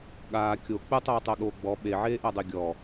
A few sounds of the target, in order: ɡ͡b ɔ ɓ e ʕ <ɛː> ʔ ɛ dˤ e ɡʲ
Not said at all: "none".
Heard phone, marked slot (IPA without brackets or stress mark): eː